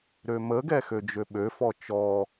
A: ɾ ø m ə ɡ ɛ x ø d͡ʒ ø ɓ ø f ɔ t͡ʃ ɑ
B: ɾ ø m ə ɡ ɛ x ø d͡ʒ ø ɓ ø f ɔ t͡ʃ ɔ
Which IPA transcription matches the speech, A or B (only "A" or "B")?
B